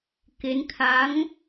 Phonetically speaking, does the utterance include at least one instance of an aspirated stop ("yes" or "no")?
yes